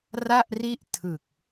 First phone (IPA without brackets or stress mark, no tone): r